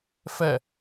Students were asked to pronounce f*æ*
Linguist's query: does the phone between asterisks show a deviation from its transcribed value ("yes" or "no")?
yes